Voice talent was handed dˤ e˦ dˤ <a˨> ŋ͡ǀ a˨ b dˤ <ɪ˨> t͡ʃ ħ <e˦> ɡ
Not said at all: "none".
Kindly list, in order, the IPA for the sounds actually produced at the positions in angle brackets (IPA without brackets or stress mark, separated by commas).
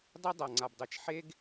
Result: a˨, ɛ˨, e˦